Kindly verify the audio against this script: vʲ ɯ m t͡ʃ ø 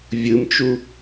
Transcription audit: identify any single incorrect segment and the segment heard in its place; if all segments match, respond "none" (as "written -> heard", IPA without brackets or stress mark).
ø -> u